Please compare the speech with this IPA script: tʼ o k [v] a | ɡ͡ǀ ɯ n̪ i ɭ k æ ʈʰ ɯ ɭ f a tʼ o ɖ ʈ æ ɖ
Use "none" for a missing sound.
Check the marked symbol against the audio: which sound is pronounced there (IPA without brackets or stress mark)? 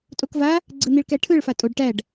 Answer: v